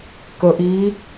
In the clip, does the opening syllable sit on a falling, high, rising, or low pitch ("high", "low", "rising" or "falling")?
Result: low